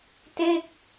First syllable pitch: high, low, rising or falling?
falling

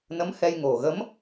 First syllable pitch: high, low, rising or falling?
rising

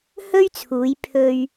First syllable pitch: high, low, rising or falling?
high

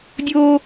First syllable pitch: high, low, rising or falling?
high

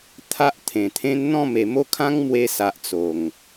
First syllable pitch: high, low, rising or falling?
high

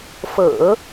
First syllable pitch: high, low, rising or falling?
low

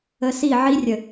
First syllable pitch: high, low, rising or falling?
low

